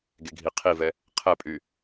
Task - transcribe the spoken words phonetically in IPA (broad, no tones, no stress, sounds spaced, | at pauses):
ɡ e ɡʱ i qʰ i v ɛ | qʰ ɛ pʼ y